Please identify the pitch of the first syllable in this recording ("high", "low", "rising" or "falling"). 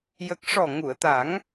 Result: low